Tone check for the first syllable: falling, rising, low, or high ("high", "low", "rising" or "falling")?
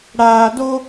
low